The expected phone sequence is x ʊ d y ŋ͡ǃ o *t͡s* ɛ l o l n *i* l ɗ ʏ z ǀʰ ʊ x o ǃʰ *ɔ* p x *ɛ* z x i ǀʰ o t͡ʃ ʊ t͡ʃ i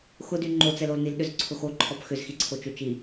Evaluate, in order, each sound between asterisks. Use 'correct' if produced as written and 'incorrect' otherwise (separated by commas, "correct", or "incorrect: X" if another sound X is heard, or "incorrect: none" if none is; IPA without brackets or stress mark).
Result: correct, correct, correct, incorrect: ʏ